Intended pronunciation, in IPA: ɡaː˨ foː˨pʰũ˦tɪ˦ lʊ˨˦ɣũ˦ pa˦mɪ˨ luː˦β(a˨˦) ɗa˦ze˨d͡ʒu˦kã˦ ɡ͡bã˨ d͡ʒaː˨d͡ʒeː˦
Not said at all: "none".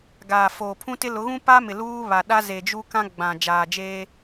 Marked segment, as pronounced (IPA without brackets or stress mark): a˨